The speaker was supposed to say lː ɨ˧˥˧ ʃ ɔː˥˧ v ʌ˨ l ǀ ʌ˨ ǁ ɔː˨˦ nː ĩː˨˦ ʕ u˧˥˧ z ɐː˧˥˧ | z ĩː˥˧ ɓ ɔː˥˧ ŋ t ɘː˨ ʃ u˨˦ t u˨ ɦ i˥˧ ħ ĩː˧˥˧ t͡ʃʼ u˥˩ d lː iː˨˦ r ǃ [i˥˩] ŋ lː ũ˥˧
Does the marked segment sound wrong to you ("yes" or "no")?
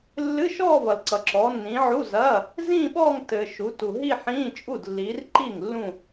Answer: no